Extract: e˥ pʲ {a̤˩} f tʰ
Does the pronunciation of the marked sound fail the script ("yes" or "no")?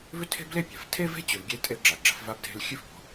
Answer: no